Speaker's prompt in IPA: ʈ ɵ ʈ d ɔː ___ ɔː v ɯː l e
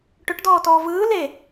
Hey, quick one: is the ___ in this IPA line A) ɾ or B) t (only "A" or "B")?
B